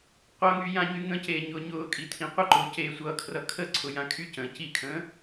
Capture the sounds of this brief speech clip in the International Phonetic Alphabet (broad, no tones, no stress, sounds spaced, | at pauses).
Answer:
qʷ ʌ ŋ y j ã ɲ y ŋ ə̃ c eː ɲ ʊː ɲ ʊː kʼ i tʰ ĩ qʷ ə ǃ ʊː c eː sʷ ʌː kʰ r ʌ kʰ ə ǀʰ ʊ j ã kʰ y c ə̃ː c i kʰ ə̃ː